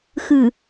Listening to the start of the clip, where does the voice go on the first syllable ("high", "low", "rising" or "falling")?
low